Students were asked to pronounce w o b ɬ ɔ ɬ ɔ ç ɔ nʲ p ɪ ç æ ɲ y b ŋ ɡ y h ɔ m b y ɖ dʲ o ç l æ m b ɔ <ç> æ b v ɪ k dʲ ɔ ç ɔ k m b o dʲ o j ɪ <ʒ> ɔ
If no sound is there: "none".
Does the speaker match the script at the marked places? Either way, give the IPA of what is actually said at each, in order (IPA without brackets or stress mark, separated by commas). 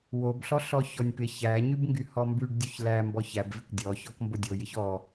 ç, ç